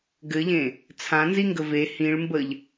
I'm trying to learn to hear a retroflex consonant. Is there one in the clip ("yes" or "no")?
yes